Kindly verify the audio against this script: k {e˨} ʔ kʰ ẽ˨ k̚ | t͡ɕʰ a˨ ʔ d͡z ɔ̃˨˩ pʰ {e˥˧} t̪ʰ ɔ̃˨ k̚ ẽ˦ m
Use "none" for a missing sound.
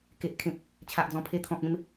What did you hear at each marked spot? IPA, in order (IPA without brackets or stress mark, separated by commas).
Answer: e˨, e˧